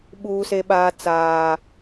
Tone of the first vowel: high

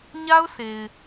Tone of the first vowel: high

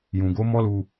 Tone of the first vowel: low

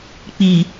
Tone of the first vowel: low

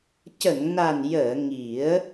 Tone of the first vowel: low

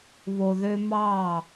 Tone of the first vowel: low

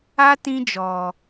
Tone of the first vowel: high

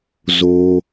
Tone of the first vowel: high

